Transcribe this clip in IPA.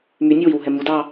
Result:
my nʲewiwɦɛ mudɑ

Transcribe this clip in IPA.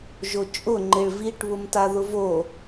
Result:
ʒot͡ʃʼʊŋ͡ǃɪɭ viʈβʊm taðʊvo

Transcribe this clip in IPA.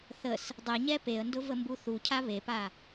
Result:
θəs | dˤɛɲɛ peə̯ndʊ vəmbuθucʰa βepa

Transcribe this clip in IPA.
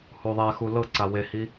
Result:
huðˤɛxu lɤǀa wehi

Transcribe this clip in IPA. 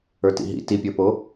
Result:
ə˞tḭɦḭ tipʲə˞po

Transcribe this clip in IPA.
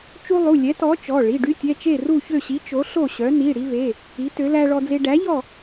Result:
t͡ʃu˦lˠu˩˧˩ lʲɛ˨˥tɔ˨˥t͡ʃɔ˩˧˩ ɭi˩˧˩ɖy˦tʲɛ˩˧˩ t͡ʃe˥˨ru˥˨çø˥˨ɕi˨˥ t͡ʃo˨˥ɬo˥˨ɕœ˨˥ ni˩˧˩ɽi˦ve˩˧˩ | i˨˥ tø˨˥ læ˦ɭɔ˦d͡ze˦ ɖæ˨˥ʎɔ˥˨

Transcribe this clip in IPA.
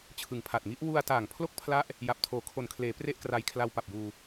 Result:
t͡ɕʰɯ˩˦ŋpʰa˨˩t̚ŋi˦˥ʔ wu˧a̯ taː˨˩ŋpʰlo˥˩k̚pʰla˦˥ʔ | ja˨˩p̚tʰoː˨˩ kʰo˨˩nkʰleː˩˦ pre˥˩ʔkra˧j kʰla˧wpa˨˩p̚juː˧

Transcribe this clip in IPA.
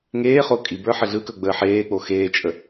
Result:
ŋeː χokʼibə˞ ħəɮɯkɵ ɡ͡bəːħeːk͡po xeːt͡ʃʼə

